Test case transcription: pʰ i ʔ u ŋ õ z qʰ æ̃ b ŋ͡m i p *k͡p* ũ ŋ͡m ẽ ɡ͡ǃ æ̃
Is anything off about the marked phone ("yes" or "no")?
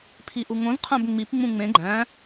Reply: yes